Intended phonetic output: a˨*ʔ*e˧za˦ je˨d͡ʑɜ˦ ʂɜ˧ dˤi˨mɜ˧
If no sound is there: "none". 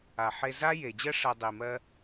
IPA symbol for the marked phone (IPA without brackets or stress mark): ħ